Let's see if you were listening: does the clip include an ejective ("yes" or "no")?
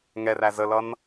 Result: no